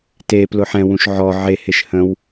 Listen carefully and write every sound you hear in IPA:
t e p l ʊ ħ ɛ̃ w ũ ʃ ʕ ɔ ʕ e h e ʃ h ə̃ w

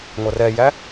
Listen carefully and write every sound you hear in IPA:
ŋʷ ʌ r ɛ j æ

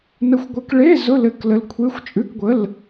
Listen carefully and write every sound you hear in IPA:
n ə˧˥ xʷ ɡʷ ɘ˧˥ k ɭ e˧˥˧ z ʊ˧˥˧ l ɘ˧˥ k l ə˧˥ l kʷʰ e˧˥˧ xʷ t͡ʃʼ ʉ˧˥˧ k ɡʷ ə˧˥˧ l

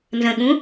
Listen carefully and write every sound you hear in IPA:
n z ə̃ ɠ ũ

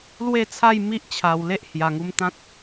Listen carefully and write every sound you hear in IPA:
l w e˥˧ t͡sʰ a˥˧ j m i˦ ʔ t͡ɕʰ a˨˩ w l e˦ ʔ h j a˨˩ ŋ u˧ m t̪ ã˦ t̚

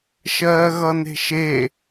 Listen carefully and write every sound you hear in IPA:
ʃ ɜː ɣ ʌ n e̤ ʃ e

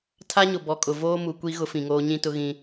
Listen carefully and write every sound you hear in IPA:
tʰ a˦ ɲ ʊ˨ b ɔ˨ kʼ ʊ˨ v oː˦ m u˨ kʷ i˦ ɣ ʊ˦ f ĩ˨ ŋ oː˦ ɲ ĩ˦ t ʊ˦ ɣ ĩ˦

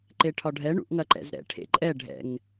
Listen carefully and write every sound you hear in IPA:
ǃ e ʈʰ ɒ ɖʱ ɛ ɳ ṵ ʔ ŋ ɐ ǃ ɛ̰ z ɾ ɛ̰ ʈʰ ḛ ǃʼ ɛ ɖʱ ɛ̰ ŋ

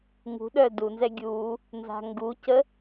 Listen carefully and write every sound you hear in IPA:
ŋ ṳ ɗ œ d u n z ɛ ɡʲ u | n z a̤ ŋ ɡ u c ə

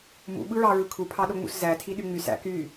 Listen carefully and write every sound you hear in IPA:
m ṵ ɓ ɯ ɹ ɑ ɹ ɯ kʰ u pʰ ɑ ɗ o ŋ͡m ṵ s z æ tʰ i ɗ y ŋ͡m y s æ̰ k y

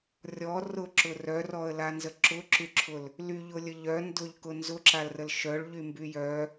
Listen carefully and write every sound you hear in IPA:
rʲ ɔ r ʊ ǁ ʊ r œ r ɔ ə̯ l a n z ə ǁ ʊ ǁ y ǁʰ ʊ l | l y ʎ ʊ lʲ ə ʎ œ n d ʊ ʎ k ʊ n z ʊ ǁ a l r ə l ʃ œ ɭ ʎ y m b y j œ

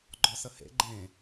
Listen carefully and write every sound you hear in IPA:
ɡ͡ǃ ɔ s ə h ḛ ɡ͡ǃ ẽ

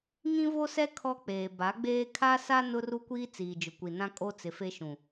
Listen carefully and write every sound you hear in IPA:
ŋ ĩ˦ v o˦ s ɛ˦ kʰ ɔ˦ k͡p eː˨ b a˨˦ ɡ͡b eː˦ kʰ a˦ s a˦ n ʊ˦ r u˦ kʷ iː˦ t͡s iː˨ d͡ʒ ʊ˨ kʷ i˨ n ã˦ kʼ o˦ t͡s ɪ˨ f e˦ ʃ ũ˨

